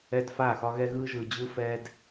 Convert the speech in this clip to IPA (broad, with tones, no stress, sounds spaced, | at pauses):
ɛ˦ d f a˦˨ x ɒ˦ ɣ ɛ˦ ɣ ɯ˦ ʒ ɯ˨ d͡ʑ ɯ˦ f ɛ˧ d